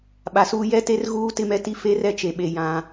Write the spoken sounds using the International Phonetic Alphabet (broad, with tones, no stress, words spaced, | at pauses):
ɓa˨suː˦ jɛ˦te˦r ɣuː˦tɪ˦mɛ˦ti˦ fe˦rɛ˦t͡ʃe˨ɓe˨ jã˦